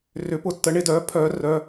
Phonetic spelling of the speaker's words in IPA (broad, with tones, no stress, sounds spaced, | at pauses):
r ʏ˩˥ p ʊ˩˧˩ tː ə˩˥ ɳ ɪ˨˩˦ d œː˩˥ pʰ œː˨˩˦ r œ˩˧˩